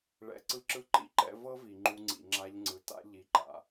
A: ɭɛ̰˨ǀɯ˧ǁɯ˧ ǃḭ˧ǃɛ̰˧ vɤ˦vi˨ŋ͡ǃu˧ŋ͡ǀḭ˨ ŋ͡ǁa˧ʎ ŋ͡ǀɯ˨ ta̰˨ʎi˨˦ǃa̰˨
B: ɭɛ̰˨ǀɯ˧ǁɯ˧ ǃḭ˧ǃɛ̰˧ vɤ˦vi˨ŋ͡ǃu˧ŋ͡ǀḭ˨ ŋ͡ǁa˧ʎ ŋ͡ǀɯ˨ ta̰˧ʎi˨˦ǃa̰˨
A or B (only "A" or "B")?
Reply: B